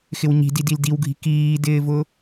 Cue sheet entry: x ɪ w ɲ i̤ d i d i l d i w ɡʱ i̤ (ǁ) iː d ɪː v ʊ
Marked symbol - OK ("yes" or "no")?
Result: no